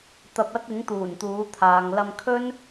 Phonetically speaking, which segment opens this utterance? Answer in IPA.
t̪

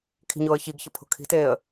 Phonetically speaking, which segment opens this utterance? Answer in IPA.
kʰ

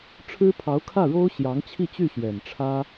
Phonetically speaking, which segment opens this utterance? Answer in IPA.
ʈ͡ʂʰ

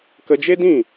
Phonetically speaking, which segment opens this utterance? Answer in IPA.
k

